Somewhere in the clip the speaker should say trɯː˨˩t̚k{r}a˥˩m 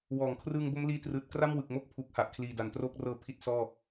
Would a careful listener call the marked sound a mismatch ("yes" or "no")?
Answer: no